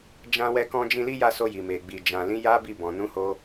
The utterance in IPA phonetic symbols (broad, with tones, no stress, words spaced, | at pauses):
d͡ʒã˦ wɛ˧kɔ̃˧d͡ʒĩ˧ li˦ja˦˨so˧ ji˨me˨ɡ͡bi˨ d͡ʒã˨lĩ˨˦ ja˦bi˦˨bɔ̃˨ nũ˨˦ho˧